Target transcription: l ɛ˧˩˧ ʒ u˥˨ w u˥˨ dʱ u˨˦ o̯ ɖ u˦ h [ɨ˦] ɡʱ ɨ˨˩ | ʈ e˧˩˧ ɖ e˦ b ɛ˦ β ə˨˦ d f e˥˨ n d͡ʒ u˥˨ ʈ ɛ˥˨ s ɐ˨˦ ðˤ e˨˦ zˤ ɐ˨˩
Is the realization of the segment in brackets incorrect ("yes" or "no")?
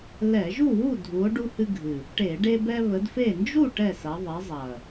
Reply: no